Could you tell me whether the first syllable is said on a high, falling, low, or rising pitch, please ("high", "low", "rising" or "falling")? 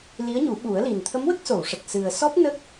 rising